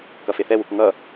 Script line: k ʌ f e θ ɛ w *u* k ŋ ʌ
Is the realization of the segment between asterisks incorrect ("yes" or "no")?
no